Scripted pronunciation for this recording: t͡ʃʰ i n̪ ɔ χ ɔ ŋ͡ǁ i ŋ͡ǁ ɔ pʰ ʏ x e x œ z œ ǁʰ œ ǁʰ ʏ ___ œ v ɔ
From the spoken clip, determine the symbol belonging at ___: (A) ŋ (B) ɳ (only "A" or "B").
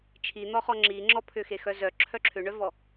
B